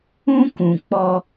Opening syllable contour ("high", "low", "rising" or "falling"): high